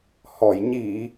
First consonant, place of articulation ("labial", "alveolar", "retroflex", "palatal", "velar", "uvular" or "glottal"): glottal